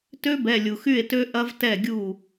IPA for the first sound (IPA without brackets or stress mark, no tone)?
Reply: t